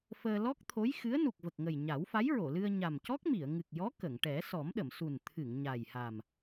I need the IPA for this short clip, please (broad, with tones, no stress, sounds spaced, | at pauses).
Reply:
f əː˧ l ɔ˦˥ k̚ t̪ʰ o˧˥ j x ɨ˧˥ ə̯ n u˨˩ k̚ v ə˨˩ k̚ ŋ ə˨˩ j ɲ a˨˩˦ w f a˧˥ j ɹ o˨˩˨ l ɨ˧ ə̯ ɲ a˨˩ m c ɔ˦˥ k̚ m i˨˩˨ ə̯ ŋ ɨ˨˩ k̚ j ɔ˧˥ k ə˨˩˨ ŋ ʈ ɛ˨˩˦ s ɔ˨˩˦ m ɗ ə˨˩˨ m s u˨˩ n t̪ʰ ɨ˨˩˨ ŋ ɲ a˨˩ j h a˨˩ m